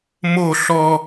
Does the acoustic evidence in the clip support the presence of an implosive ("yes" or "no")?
no